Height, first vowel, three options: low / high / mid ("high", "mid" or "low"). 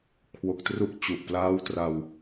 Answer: mid